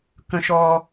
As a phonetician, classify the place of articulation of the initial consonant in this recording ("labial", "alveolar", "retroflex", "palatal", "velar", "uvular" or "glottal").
velar